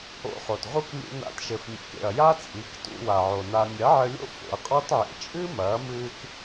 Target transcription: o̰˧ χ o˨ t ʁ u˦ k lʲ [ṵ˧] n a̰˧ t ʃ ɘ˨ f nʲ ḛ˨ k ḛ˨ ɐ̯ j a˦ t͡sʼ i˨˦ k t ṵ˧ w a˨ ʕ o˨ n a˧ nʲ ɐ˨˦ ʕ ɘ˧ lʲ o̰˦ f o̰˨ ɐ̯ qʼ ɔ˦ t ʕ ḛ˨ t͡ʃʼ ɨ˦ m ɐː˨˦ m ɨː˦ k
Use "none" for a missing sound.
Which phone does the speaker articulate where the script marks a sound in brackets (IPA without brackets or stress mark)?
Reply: ṵ˧